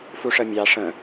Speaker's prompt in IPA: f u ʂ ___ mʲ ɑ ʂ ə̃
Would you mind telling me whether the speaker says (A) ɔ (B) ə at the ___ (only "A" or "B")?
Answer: B